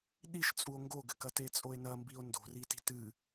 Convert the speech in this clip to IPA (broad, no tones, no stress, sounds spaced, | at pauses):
ɗ i ʃ t͡sʼ u o̯ ŋ ɡ o ɡ ɘ k ɐ t e t͡sʼ o e̯ n ɐ m b i o̯ n d o̤ r i t i̤ t ɨ